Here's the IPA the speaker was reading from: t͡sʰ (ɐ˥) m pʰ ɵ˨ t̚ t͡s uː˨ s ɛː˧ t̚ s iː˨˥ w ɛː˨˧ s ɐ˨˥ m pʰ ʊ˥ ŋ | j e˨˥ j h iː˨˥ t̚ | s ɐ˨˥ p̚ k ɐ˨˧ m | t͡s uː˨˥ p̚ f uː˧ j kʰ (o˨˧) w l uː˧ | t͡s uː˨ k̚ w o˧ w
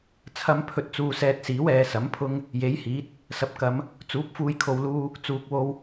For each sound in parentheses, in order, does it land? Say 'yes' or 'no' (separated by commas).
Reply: no, no